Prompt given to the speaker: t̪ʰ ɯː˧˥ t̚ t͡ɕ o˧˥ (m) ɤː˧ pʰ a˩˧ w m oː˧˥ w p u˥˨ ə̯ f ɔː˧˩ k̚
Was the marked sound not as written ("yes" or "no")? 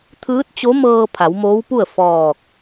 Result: no